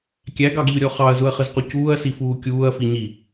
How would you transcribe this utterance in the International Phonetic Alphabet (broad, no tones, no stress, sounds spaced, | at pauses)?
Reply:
kʲ æ ɡ ɑ ɡ ʎ ʊ ɾʲ ɔ χ ɑ ɐ̯ z ʊ ɐ̯ χ ə z q u c uː ɐ̯ s i f uː kʲ uː ɐ̯ f i ɲ i